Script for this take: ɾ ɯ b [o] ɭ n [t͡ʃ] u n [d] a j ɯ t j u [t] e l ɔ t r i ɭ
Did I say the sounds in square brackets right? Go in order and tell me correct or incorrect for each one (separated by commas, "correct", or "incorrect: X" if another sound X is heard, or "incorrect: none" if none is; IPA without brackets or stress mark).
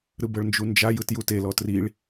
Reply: incorrect: ɤ, incorrect: d͡ʒ, incorrect: d͡ʒ, correct